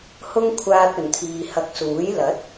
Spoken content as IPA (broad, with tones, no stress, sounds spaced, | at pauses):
h ʊ˥ ŋ kʷʰ aː˧ t̚ ɵ˨˩ n t̪ʰ iː˨ h ɐ˧ k̚ s uː˨˥ j l ɐ˨˥ t̚